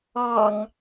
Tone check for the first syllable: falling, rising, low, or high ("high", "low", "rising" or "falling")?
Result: low